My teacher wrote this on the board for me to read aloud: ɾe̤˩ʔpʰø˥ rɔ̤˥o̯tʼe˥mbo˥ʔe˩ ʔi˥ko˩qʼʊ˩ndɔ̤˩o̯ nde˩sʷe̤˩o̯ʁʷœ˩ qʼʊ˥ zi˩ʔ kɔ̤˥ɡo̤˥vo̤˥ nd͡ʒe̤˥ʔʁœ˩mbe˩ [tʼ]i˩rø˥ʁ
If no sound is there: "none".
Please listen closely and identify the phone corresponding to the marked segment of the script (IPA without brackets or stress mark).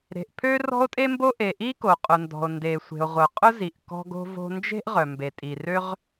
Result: tʼ